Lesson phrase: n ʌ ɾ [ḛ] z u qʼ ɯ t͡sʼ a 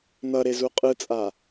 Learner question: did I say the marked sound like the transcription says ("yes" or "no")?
no